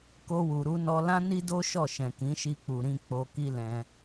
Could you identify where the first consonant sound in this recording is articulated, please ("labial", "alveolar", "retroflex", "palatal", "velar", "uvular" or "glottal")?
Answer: velar